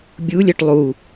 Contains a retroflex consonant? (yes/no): yes